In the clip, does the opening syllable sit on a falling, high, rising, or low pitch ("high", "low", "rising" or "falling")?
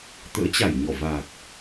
rising